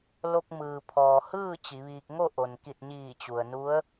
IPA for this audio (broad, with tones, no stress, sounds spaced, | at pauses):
l o˧ k̚ m ɯː˩ pʰ ɔː˩ h ɯː˥˨ t͡ɕ i˩˧ ʋ iː˧ k̚ ŋ o˥˨ ʔ o˩ n k i˧˩ t̚ ɲ iː˧˩ t͡ɕ u˩ ə̯ n u˧˥ ə̯